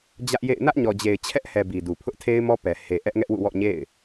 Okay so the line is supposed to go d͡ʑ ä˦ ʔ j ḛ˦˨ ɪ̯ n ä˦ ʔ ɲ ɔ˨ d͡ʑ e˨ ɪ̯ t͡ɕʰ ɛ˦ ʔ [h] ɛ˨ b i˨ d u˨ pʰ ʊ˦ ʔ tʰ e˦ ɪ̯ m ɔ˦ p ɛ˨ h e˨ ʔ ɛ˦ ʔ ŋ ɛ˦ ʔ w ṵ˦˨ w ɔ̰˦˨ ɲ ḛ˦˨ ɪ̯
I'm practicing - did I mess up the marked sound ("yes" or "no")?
no